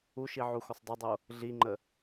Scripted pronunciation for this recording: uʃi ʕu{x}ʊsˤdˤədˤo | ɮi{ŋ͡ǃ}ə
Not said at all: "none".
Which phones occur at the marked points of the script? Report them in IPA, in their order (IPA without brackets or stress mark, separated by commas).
x, ŋ͡ǃ